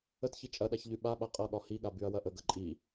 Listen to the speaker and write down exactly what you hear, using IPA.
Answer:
ə t ç i t͡ʃʼ ɐ ɗ a ç ʎ y ɓ a ɓ a qʼ ʌ ɠ ɒ h i ɠ a b y ɐ̯ w ɐ ʔ ə ɡ ɐ ǃʼ i

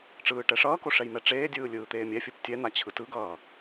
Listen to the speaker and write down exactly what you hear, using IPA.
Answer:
ʈ͡ʂ ɯː ʈ ɛ ʂ ʌː k o ʂ ɛ j m ɛ ʈ͡ʂ eː dʲ ɯː lʲ ɯː t̪ eː mʲ ɛ fʲ ɯ p tʲ ɛ n̪ a t͡ɕʰ ɯ t ɯ ɡ ʌː

